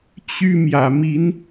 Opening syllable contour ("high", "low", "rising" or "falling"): high